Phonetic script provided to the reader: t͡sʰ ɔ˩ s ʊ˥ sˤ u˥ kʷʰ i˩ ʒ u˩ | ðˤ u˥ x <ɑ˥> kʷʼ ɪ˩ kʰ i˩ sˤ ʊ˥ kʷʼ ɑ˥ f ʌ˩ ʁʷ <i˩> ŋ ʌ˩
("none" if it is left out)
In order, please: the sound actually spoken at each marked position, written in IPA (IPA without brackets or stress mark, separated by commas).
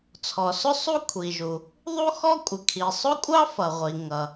ɔ˥, i˩